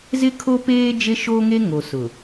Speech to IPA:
zɪ˦kʰo˦peː˦ d͡ʒe˦ʃo˦ŋe˦ ŋo˨sʊ˨

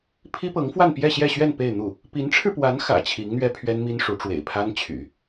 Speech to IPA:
pʰi˥pɤ˧˥ŋfwa˥˧n pjɛ˥˧ɕjɛ˥˧ɕɥɛ˥˧n pe˥˧ɪ̯n̪u˥˩ | pi˧˥nʈ͡ʂʰɻ̩˧pwa˧˥n xä̰˨˩ t͡ɕʰi˧˥ŋn̪ɥɛ˥ pʰɥɛ˥nmi˥nʂu˧˥ ʈ͡ʂwḛ˨˩ɪ̯pʰa˥nt͡ɕʰy̰˨˩˦

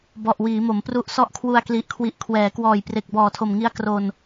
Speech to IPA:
bɔ˨˩ʔwiː˩˦ mo˩˦mpru˥˩ʔ sɔ˦˥ʔkʰwu˧a̯kli˨˩ʔkʰwi˨˩ʔ kʰwɛː˩˦kwɔː˨˩jpre˨˩k̚ bɔː˨˩tʰo˨˩mŋi˦˥a̯ kro˧n

